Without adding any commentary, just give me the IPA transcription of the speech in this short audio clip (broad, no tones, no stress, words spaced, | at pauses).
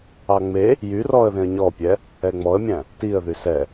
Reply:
ɑŋ͡me | jyrɔə̯ ðẽə̯ɲɔpʲɛ | ɛŋ͡mɔə̯mʲæ̃ | tiə̯ðy sɛ